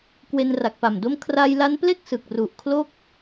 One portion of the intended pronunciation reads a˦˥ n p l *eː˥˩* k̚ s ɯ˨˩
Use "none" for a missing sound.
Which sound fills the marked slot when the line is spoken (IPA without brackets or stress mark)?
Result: e˥˩